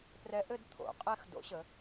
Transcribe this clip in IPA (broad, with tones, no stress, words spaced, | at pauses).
prɛ˨˥ʔɘ˥˧d t̪ʰo̰˩˧ qʼɛ˥˧x do̰˨˥ɕə˩˧